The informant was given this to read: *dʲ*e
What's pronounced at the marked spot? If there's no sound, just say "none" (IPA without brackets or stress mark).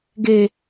ɡ